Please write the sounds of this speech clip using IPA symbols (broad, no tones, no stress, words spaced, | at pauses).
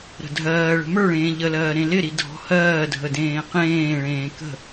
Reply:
ɾə̤dʱɜːɭə̤ mə˞ɭẽː ʎəlɜː ɾẽlɪɾi dʱɔ̤hɜːdʱə dẽːqẽːɭẽː kə̤